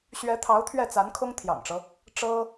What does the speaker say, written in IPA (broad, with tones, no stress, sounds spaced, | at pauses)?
ɕ ɥ ɛ˧˥ t̪ʰ ɑ˧˥ ʊ̯ t̪ʰ ɥ ɛ˥˩ t͡s a˧˥ n kʰ ʊ˥ ŋ t̪ʰ j ɑ̰˨˩ ŋ ʈ͡ʂ ɤ˦ | ʈ͡ʂ ɤ˥